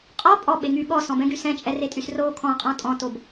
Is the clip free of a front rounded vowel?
no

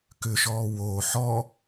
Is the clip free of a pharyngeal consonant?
no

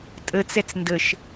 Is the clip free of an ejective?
no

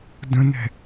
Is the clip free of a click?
yes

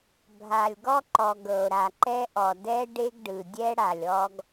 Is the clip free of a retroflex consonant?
no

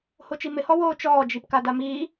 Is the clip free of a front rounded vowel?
yes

